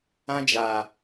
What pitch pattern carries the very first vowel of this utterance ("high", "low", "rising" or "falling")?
high